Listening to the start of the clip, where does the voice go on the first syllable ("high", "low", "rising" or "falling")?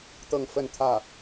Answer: falling